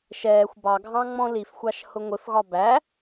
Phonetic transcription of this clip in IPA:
ʃ ɛː xʷ b ɑ ɡʱ ɑ̃ ŋ͡m ɔ̃ l i f xʷ ɑ ʃ h ʊ ŋʷ ɪ f ɣ ɒ b æ

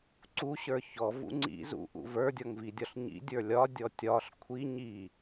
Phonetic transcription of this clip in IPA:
ǀ u ɕ ə˞ ç ɔ v ṵ ŋ͡ǀ ḭ z ṵ ʔ ṵ v ə˞ dʲ ɔ ŋ v i dʲ ɒ ɬ ɲ ḭ dʲ ə˞ lʲ ɒ dʲ ɔ tʲ ɒ ɬ kʷʰ i ɲ i

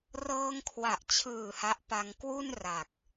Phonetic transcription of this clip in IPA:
r ɤː˧ ŋ kʰ w a˨˩ ʔ t͡ɕʰ ɯː˨˩ h a˦˥ ʔ p a˧ ŋ k w u˥˩ n r a˨˩ k̚

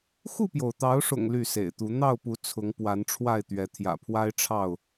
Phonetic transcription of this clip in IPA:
x u˥˨ p j o˩ ʊ̯ t̪ ɑ˨˦ ʊ̯ ʂ ʊ̰˨˩ ŋ l y˥˨ s ḛ˨˩ ɪ̯ t̪ u˨˦ n̪ ɑ˥˨ ʊ̯ p u˨˦ t͡sʰ ʊ˨˦ ŋ p w a˨˦ n ʈ͡ʂʰ w a˥˨ ɪ̯ t̪ ɥ ɛ˨˦ t̪ʰ j ä̰˨˩ pʰ w a˦ ɪ̯ ʈ͡ʂʰ ɑ˥˨ ʊ̯

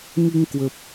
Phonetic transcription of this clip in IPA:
ŋ i˧ ŋ k w ə˨˩ p̚

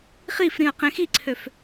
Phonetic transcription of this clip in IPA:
χ i f ɾ ĩ ɐ̯ q ẽ x i ǀʰ ø f

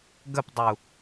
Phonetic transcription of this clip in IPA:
ɡ ə p dˤ u

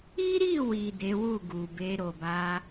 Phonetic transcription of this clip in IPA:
i˦ ɾ i˦˨ w i˨ d e˨˦ w u˦˨ ɡ u˨ b e˧ ɾ o˨ b a˧

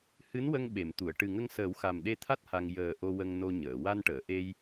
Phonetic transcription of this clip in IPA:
h ɨ˧˥ n w ə˧ ŋ ɓ e˨˩˨ m t̪ u˨˩˨ ə̯ ʈ ɨ˨˩ ŋ ə˧ ŋ s əː˨˩˦ w x a˨˩ m ɗ e˧ t̪ʰ a˦˥ t̚ h a˧ ŋ j əː˨˩ ʔ o˧ w ə˧ ŋ n o˧ ɲ əː˨˩˨ w a˧ n ʈ əː˨˩˨ ʔ e˧ j

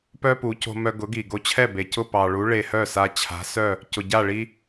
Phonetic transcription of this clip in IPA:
p œ˥ p u˩˥ c o̤˧ m œ˧ ɡ ʊ˩˥ ɡ i˩ ɡ o˧ t͡ɕʰ ɛ˥˩ b e˩ c ʊ˥˩ p ɑ˩ ɭ u˩˥ ɭ e˧ h œ˥˩ s a˧ t͡ɕʰ a̤˩˥ s œ˥˩ | c ʊ˩ ɟ a˥˩ ɭ i˧

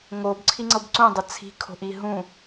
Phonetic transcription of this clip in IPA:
ŋ o b ǀʰ i ŋ͡ǀ ɤ b ǀ ũ dˤ ʌ t͡sʰ i̤ kʰ o̤ ʔ i ɦ ũ

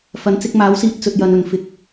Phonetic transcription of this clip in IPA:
f ɐ˨˥ n t͡s ɪ˧ k̚ m aː˨˥ w s iː˧ t̚ t͡s ɵ˧ t̚ j ɐ˧ n ɵ˨ n f ɪ˨˥ k̚

